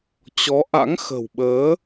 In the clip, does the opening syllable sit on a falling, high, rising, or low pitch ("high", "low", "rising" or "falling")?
rising